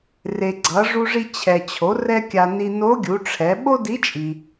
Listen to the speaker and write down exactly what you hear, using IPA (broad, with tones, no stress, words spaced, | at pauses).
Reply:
re˩ɡ͡ǀʌ˩˧ʐu˧ʐi˧ t͡ɕʰɛ˩t͡ɕʰo˩˧ rɛ˥kʲa˧ ni˧ no˧˥ɡʲu˩˧ʈ͡ʂʰɛ˩˧ ɓo˥di˧˥t͡ʃʼi˩